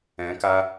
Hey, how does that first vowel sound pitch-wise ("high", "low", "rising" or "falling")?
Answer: rising